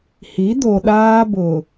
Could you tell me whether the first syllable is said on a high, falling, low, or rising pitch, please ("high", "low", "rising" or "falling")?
rising